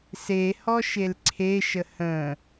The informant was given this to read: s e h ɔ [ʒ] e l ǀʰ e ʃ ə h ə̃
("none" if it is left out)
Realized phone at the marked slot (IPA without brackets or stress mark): ʃ